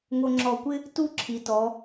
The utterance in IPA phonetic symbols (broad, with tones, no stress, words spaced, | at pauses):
ŋo˧ŋ͡ǁɔ˧˩kʷɪ˥ | tu˥˧ ǁʰi˩˧ tɔ˩˧